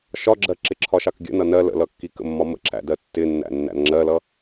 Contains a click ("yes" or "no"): yes